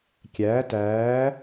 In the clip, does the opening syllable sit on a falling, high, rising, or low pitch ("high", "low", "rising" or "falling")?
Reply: rising